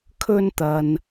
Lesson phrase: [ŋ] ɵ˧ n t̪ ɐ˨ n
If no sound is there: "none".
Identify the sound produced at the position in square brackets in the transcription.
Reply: kʰ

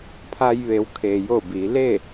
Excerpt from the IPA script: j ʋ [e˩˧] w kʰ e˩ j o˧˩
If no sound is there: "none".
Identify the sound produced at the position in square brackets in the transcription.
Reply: e˩˧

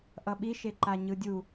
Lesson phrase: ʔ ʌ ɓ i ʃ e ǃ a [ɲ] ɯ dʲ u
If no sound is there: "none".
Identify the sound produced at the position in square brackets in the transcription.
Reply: ɲ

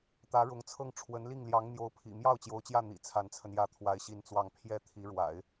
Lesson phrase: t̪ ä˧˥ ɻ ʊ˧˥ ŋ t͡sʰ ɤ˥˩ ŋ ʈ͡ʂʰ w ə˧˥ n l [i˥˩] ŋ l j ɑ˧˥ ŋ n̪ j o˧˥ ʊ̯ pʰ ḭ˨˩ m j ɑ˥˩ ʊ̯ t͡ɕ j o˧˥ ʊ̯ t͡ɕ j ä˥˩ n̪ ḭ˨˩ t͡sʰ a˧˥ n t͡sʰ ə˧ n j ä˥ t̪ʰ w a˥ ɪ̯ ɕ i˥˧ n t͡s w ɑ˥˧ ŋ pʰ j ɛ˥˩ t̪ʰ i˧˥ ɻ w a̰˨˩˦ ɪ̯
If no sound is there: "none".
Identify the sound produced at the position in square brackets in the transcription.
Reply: i˥˩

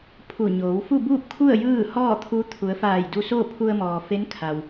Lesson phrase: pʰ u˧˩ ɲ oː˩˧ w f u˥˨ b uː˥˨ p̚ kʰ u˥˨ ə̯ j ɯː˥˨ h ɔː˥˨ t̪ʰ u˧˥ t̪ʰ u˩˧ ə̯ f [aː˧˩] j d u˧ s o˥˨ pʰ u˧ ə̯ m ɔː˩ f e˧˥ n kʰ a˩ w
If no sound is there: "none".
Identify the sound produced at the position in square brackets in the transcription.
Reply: aː˧˩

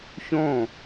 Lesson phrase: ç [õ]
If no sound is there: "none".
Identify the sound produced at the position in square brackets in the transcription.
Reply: õ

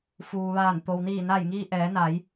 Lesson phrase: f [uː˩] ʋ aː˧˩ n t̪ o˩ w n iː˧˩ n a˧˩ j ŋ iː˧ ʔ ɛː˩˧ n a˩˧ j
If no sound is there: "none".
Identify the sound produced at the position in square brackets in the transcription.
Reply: uː˩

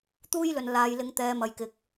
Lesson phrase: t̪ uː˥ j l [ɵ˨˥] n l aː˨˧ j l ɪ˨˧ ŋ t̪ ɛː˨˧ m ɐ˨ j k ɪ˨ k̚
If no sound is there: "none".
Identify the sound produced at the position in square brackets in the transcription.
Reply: ɵ˨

